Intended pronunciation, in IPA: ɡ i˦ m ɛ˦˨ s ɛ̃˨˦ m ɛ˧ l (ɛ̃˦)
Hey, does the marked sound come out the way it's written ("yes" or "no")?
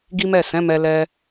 no